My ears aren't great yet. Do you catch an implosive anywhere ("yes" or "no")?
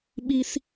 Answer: yes